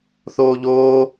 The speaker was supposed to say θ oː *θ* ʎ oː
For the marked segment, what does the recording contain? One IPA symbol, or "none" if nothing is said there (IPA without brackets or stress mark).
none